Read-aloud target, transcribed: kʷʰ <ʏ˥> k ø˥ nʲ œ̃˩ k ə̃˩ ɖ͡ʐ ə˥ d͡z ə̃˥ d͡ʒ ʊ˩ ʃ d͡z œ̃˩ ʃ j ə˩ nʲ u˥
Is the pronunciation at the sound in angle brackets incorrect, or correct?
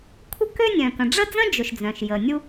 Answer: incorrect: ə˥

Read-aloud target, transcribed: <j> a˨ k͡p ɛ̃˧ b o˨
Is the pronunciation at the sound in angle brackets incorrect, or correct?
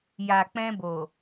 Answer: correct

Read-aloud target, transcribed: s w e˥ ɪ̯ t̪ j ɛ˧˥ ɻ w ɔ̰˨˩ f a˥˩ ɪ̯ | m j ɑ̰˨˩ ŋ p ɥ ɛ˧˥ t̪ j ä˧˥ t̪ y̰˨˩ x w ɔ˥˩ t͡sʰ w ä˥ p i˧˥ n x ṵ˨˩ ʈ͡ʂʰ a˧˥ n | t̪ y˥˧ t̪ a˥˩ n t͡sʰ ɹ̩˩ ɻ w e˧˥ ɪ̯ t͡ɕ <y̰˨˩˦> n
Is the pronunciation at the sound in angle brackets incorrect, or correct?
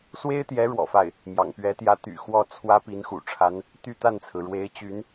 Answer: incorrect: y˧˥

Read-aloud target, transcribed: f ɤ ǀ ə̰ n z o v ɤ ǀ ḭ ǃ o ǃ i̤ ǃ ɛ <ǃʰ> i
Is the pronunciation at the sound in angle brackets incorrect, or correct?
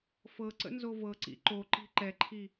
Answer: correct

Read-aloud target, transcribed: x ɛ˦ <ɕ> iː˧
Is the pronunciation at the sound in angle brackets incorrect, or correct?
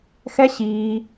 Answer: correct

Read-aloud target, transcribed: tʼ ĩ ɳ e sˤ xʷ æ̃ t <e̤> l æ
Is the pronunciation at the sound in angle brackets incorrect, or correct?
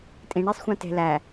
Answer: correct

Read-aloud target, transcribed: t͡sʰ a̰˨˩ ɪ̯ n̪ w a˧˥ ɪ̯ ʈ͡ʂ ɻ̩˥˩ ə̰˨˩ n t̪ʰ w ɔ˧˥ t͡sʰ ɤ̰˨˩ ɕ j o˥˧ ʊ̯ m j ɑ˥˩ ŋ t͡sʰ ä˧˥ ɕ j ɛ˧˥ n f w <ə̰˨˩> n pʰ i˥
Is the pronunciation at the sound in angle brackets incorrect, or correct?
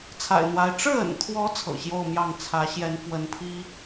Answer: incorrect: ə˧˥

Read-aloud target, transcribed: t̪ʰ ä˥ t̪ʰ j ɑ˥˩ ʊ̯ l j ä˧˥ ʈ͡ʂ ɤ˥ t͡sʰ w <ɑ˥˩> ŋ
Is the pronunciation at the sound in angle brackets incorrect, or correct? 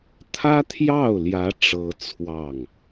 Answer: correct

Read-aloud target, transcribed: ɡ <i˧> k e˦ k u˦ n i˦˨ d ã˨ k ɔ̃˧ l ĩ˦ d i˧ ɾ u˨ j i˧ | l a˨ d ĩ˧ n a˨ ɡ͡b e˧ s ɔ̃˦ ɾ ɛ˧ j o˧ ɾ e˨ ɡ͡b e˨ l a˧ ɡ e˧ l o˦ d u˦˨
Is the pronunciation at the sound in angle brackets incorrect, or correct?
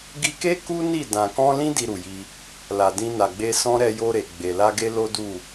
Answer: correct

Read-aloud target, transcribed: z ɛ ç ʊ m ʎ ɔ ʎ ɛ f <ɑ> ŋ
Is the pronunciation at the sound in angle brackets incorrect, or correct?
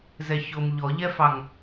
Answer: correct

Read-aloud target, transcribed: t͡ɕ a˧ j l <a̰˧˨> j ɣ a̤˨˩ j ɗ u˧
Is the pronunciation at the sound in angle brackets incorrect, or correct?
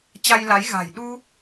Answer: incorrect: a˨˦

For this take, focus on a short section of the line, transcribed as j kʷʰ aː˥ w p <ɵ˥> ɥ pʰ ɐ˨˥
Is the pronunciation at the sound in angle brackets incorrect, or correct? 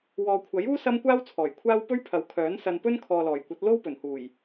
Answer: correct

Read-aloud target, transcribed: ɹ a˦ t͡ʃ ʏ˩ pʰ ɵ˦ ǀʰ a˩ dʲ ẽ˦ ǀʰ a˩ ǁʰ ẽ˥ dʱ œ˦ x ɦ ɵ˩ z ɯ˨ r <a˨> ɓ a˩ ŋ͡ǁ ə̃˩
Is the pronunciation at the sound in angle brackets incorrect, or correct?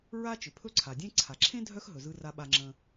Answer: correct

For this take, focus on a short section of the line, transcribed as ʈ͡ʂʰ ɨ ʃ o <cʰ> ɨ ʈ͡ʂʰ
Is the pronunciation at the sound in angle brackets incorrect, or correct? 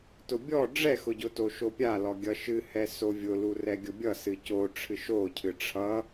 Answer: correct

